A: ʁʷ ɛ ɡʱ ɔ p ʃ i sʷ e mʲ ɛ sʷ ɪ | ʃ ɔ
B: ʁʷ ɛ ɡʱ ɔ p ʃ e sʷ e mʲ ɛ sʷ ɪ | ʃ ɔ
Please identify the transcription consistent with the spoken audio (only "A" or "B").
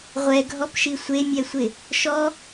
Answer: A